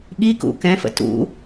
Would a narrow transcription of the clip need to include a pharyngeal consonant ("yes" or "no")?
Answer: no